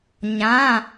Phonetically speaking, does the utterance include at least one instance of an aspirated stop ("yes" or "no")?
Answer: no